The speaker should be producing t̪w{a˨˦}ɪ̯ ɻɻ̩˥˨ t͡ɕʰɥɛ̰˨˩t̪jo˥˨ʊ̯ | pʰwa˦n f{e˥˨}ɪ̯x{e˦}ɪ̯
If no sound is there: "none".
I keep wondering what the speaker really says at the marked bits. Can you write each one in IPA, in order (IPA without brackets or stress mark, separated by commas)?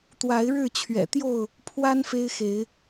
a˨˦, e˦, e˨˦